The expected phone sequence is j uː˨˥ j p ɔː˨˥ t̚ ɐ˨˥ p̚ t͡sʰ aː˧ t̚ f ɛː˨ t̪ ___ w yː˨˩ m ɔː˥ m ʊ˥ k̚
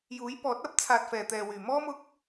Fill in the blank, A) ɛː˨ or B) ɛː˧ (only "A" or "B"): A